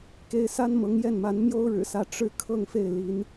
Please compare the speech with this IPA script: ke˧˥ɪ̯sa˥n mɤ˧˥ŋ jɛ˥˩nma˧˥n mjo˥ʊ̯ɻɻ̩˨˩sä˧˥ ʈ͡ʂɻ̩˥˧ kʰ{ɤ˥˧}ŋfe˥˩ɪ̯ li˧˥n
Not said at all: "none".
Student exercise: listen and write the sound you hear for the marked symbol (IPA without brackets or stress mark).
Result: ɤ˥˧